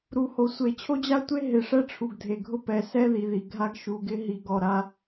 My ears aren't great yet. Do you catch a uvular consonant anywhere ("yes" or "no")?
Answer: no